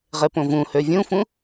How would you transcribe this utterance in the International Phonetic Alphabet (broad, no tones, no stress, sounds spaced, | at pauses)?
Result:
ʁ e p õ v ũ h ø vʲ ũ f ũ